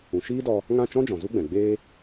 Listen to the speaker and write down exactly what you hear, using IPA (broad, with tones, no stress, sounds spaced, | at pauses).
ũ˨ ʃ iː˦ d ɔ˧ | ŋ ã˦˨ t͡ʃ ɔ̃˦ d͡ʒ ɔ̃˨ z u˦ ɡ͡b ɛ̃˨ ɡ͡b eː˦